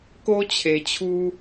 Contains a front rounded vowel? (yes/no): no